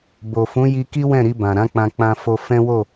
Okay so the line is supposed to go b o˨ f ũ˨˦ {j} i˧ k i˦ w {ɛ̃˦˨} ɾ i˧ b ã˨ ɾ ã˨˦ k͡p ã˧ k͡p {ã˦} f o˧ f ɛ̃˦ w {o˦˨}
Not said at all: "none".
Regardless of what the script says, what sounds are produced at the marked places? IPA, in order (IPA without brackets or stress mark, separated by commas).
j, ɛ̃˦˨, ã˧, o˦˨